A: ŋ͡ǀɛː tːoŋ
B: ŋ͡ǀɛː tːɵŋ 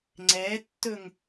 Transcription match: B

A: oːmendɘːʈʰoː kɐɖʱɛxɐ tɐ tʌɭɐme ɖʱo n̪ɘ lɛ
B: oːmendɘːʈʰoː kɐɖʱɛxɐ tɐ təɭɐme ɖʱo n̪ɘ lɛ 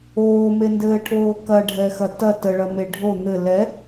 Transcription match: B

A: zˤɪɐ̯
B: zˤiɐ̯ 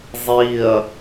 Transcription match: B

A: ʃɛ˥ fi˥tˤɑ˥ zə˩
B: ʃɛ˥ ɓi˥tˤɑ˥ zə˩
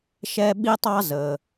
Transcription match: B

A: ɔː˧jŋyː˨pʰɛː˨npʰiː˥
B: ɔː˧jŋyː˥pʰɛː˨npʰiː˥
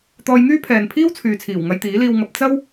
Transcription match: B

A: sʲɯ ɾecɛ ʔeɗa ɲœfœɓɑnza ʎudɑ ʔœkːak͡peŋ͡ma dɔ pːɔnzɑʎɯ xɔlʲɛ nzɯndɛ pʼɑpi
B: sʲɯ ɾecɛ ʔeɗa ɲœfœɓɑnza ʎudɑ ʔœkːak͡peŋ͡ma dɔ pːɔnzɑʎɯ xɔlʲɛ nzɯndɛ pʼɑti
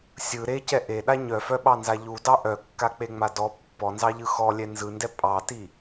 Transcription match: B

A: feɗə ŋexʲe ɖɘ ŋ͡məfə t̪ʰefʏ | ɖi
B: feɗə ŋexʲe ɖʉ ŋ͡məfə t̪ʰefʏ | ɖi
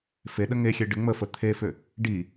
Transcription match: A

